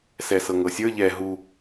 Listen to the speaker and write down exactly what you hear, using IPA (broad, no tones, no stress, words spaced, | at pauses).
sɛsɤŋɤsʲə˞ ʎɛ ɦu